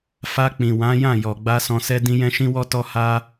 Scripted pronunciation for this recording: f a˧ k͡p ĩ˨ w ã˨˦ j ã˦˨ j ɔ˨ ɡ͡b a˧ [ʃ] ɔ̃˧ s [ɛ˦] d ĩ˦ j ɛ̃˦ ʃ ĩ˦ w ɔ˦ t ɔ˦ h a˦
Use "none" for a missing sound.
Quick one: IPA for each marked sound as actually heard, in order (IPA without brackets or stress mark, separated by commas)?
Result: s, ɛ˦